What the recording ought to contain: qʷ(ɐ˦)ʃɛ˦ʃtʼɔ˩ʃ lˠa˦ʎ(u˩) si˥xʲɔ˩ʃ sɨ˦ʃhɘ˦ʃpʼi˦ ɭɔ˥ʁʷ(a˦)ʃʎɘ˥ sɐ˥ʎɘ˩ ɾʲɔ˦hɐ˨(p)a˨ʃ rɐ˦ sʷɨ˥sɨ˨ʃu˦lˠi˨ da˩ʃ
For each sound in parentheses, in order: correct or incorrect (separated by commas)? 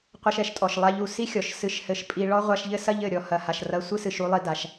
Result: correct, correct, correct, incorrect